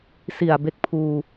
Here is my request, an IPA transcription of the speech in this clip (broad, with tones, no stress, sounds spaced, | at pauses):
s i˨˩ a̯ b e˦˥ k̚ pʰ uː˧